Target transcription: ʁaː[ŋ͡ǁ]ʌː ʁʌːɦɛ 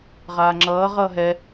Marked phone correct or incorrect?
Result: correct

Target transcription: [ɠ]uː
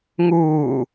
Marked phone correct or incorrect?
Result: incorrect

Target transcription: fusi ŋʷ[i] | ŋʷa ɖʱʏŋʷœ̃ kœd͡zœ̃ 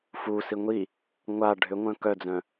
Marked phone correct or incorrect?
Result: correct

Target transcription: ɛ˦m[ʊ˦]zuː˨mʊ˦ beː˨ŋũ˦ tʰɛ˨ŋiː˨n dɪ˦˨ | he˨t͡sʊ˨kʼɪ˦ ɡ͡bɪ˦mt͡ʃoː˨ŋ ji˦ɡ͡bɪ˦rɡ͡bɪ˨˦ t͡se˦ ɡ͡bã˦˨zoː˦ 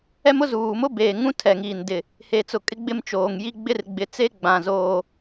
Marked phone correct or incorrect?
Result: correct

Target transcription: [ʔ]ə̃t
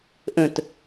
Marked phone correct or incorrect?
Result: correct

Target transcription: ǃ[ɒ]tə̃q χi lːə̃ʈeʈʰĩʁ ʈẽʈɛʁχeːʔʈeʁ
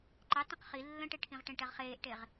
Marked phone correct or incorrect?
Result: incorrect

